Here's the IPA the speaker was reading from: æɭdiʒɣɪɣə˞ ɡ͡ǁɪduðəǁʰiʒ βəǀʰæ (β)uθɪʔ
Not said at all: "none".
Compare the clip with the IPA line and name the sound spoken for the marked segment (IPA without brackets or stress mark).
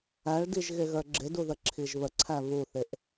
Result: β